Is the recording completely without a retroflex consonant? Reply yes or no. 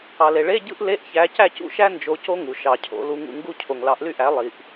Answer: no